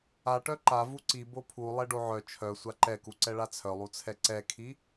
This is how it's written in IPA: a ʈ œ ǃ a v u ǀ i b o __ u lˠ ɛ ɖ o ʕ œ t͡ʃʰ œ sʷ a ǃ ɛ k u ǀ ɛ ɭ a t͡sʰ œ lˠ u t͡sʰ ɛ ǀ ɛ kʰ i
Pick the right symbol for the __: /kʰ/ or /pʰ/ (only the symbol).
pʰ